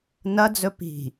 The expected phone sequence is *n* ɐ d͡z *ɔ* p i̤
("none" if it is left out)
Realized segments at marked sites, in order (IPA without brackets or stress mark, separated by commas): n, ɵ